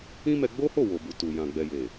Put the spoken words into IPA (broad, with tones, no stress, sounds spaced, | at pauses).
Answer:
ĩ˦ m ɛ˧ ɡ͡b o˦ h o˦˨ w o˨ b u˨ t u˨ j ã˨ ɡ͡b ɛ˨ j e˨